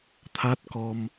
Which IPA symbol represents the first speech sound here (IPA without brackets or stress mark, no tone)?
t̪ʰ